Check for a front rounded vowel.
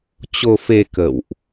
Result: absent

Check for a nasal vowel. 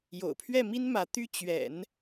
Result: absent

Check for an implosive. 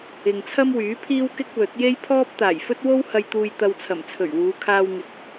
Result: absent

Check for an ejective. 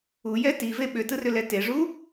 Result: absent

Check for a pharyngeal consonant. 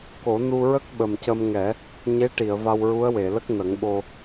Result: absent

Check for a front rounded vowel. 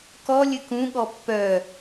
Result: present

